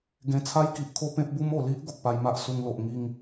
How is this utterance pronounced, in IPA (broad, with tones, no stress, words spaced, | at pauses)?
ɡẽ˨˩t͡sʰa˧jki˨ʔkʰo˧ pẽ˦p̚bu˦mo˨˩ li˦ʔ ɡo˨k̚pa˧jma˦ʔ su˧ŋlo˨ʔŋi˥˧ŋ